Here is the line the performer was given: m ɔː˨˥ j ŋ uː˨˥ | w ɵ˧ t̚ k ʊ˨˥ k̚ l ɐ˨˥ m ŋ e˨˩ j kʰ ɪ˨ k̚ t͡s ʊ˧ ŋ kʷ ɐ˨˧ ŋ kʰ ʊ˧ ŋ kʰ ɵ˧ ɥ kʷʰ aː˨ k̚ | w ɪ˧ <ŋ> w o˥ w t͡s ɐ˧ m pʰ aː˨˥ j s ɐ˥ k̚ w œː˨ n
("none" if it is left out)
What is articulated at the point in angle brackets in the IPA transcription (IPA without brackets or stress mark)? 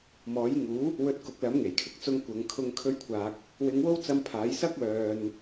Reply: ŋ